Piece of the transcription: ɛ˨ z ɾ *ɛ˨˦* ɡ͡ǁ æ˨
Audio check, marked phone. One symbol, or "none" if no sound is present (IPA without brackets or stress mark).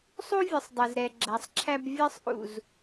ɛ˨